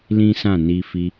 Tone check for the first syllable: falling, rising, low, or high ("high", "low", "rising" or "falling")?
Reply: high